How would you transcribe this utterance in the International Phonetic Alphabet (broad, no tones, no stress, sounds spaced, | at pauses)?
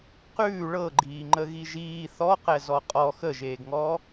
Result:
q ʉː ɭ ɤ ɡ͡ǃ iː ŋ͡ǃ ə ɣ i ʒ iː θ ɔ q ɛ z ɔ qʼ ɔ x ə ʒ eː ɡ ŋ ɔː